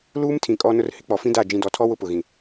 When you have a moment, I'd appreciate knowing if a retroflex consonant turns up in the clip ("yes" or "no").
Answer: no